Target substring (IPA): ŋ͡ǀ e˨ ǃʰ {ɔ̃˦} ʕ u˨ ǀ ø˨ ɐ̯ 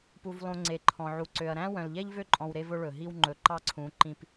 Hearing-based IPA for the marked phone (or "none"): ɔ̃˨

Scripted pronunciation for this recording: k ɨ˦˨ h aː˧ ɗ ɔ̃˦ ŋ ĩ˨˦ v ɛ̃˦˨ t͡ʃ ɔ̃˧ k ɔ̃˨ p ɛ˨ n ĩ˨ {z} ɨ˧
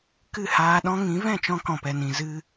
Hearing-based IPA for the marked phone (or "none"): z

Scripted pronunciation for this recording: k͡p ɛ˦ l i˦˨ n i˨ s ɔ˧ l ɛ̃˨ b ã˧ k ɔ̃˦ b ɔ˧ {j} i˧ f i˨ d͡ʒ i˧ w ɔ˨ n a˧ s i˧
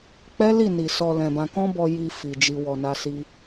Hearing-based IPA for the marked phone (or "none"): j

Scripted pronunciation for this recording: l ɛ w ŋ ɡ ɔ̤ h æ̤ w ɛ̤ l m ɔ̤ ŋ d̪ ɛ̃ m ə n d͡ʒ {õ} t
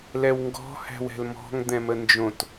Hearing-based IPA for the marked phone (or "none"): õ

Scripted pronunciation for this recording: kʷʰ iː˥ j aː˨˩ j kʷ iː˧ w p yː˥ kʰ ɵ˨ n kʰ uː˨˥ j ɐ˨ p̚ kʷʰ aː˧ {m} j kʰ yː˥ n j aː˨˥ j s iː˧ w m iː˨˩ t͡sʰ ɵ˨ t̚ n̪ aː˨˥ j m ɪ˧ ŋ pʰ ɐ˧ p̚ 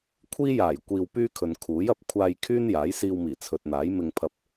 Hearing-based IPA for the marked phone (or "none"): none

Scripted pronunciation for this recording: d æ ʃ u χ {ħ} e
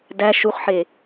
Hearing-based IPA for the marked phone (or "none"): ħ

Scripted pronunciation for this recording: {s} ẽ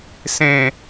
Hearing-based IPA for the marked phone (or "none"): s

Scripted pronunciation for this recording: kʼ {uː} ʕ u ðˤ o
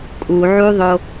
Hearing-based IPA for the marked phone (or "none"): u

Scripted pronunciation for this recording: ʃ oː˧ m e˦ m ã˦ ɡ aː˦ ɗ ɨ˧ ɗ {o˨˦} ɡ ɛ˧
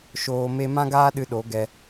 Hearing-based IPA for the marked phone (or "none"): o˨˦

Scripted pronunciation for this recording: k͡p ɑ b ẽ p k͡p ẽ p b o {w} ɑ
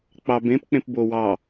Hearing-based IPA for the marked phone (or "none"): w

